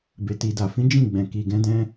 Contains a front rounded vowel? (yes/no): no